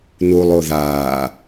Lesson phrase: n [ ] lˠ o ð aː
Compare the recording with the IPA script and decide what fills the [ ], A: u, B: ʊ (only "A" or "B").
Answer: A